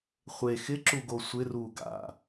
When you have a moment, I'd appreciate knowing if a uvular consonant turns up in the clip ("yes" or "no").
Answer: yes